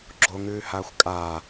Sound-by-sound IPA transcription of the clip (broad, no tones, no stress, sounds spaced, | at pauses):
ɡ͡ǁ o ŋ ʉː h aː xʷ kʼ aː